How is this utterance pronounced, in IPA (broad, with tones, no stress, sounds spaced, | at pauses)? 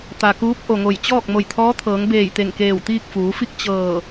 t̪ a˩ k uː˧˥ p̚ ʔ o˩ ŋ o˧˩ j t͡ɕ ɔː˥˨ k̚ m o˧˩ j t̪ʰ ɔː˧˥ t̪ʰ ɤː˩˧ ŋ b eː˧˩ j t̪ e˧˩ ŋ k eː˧˩ w t̪ iː˥˨ k̚ f uː˩˧ f i˥˨ k̚ t͡ɕ ɤː˧˩